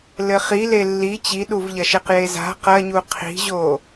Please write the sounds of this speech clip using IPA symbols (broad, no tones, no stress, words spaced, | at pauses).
lɘχile lːi t͡ɕiɗuvʎɐʃeq jeza̤ qɐɲu qʰi̤ʑo